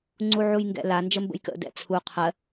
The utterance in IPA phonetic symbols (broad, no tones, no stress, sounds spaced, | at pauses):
ŋ͡ǀ u ʕ u j ŋ ɡ ɛ̰ l a n d͡ʒ ə m b ə̰ j k ə̰ d ɛ̰ t͡sʰ u qʰ ɜ